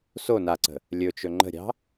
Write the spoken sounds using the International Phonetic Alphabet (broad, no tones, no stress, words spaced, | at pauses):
so naǀə̤ | lʲɵt͡ʃɵ ŋ͡ǃə̤ɾʲɑ̤